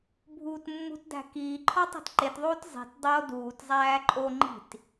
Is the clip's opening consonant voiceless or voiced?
voiced